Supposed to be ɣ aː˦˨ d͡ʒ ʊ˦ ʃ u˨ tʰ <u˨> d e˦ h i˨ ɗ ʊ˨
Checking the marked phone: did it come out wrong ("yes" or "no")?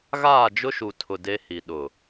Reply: yes